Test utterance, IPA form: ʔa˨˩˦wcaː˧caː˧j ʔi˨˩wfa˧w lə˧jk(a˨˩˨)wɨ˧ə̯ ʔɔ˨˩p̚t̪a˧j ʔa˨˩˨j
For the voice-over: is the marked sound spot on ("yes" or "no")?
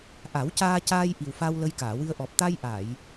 no